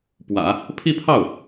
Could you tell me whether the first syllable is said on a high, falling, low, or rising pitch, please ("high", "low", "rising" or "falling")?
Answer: low